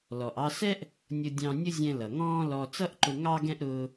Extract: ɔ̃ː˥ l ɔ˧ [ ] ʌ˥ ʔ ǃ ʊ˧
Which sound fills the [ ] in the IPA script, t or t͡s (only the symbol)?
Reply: t͡s